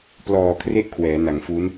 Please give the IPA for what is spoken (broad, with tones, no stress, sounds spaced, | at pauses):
p l ɔː˨˩ kʰ r e˥˩ ʔ kʰ w ɛː˩˦ n a˩˦ ŋ f u˦˥ n